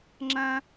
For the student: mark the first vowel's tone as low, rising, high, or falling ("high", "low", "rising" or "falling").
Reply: high